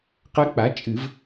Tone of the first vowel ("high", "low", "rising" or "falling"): rising